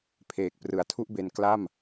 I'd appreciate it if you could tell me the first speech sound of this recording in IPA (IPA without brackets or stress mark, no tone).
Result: pʰ